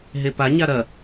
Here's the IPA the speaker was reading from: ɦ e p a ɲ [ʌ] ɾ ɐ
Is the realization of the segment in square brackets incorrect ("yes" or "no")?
yes